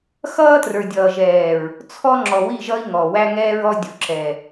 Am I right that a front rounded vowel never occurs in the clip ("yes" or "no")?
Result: yes